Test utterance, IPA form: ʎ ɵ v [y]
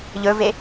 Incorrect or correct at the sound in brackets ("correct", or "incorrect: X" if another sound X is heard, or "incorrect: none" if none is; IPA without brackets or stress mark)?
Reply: incorrect: e